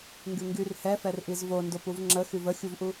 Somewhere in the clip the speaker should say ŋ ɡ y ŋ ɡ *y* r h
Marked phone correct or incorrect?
correct